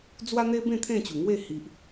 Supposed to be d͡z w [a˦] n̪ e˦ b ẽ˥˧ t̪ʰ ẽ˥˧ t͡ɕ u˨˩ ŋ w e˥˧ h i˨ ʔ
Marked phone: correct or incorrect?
correct